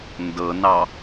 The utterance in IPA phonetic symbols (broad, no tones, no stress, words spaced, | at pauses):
ndɤnɑ